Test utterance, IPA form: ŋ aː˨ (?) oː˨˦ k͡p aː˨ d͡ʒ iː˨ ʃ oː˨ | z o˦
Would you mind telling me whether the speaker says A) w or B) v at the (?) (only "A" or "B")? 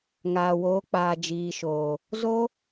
A